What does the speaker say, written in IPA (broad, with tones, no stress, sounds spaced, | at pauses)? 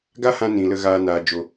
ɡ a˦ h ã˧ n ĩ˨ l ə˧ ɣ aː˧ n aː˨ d͡ʒ o˨